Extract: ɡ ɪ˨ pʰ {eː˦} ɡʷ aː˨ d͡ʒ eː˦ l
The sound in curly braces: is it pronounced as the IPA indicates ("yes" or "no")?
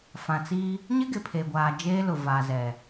no